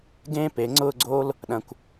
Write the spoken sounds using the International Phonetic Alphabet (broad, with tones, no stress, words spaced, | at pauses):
ɡẽː˥pe˩˧ ŋ͡ǀʊː˥˧ɡ͡ǀoː˥l | ɗɐ̃˧˩kʷ